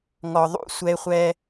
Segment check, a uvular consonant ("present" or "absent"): present